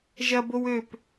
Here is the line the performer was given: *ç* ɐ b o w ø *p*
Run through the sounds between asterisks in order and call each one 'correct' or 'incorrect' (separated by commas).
incorrect, correct